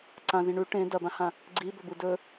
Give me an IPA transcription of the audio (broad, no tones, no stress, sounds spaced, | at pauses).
ǀ ã z ĩ ɳ ʉ ʈ ẽ d ɐ b ã h ã | ɡ͡ǀ i b ɵ b u d ɵ